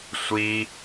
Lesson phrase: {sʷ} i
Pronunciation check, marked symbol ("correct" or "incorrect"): correct